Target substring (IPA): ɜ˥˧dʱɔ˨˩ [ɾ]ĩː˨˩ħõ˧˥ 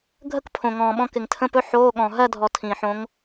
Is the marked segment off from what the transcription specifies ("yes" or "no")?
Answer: yes